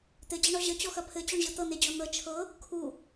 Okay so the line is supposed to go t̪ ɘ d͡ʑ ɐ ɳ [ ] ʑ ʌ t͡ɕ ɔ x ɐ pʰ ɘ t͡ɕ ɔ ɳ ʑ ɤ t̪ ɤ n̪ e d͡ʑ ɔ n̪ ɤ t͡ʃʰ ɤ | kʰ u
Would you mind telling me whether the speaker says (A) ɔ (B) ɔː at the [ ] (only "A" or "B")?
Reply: A